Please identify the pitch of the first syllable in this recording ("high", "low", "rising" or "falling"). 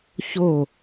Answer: falling